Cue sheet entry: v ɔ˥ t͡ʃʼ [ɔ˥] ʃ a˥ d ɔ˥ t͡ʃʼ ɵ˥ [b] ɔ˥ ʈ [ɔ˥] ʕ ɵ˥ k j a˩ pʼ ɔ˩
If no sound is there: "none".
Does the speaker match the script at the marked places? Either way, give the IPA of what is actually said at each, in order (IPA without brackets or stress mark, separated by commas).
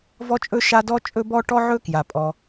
ɵ˥, b, ɔ˥